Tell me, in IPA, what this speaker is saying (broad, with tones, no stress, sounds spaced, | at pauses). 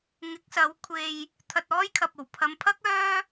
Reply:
ŋ ɪ˨˥ k̚ s ɐ˨˥ w kʷʰ e˧ j | t̪ʰ ɐ˧ t̚ ɔː˥ j kʰ ɐ˨ p̚ o˨˩ w pʰ ɐ˨ m pʰ ɐ˥ k̚ œː˥